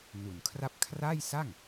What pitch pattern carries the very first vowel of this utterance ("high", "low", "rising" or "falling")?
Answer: low